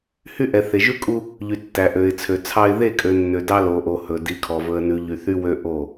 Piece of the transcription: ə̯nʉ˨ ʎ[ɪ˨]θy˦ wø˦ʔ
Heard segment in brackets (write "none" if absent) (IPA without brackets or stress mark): y˨